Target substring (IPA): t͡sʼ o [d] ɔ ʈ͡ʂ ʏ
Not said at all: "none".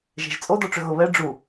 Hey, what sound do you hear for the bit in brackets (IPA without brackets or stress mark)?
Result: d